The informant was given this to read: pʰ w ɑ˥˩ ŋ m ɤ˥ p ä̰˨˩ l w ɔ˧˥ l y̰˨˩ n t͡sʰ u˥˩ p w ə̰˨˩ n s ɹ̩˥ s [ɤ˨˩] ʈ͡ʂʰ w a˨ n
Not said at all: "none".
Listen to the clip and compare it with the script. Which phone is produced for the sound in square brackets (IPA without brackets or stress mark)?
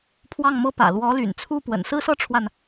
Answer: ɤ˥